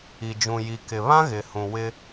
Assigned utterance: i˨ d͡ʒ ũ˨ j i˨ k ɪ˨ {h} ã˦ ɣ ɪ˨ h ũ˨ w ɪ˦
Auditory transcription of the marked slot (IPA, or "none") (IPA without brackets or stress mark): β